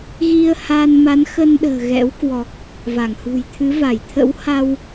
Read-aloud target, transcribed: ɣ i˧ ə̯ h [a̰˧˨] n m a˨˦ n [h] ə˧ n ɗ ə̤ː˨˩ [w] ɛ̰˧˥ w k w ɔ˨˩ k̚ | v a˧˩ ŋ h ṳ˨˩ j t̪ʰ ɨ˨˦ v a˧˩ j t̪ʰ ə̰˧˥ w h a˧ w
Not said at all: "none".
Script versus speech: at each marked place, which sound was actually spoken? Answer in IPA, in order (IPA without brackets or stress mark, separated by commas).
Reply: a˧, x, ɣ